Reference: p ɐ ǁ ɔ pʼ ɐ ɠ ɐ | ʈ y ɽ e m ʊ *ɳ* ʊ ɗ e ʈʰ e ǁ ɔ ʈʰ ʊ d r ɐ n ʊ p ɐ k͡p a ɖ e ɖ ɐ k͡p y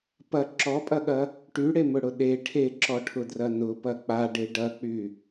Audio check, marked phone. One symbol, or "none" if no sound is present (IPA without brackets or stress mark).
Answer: ɽ